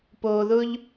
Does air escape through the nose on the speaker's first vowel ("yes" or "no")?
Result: no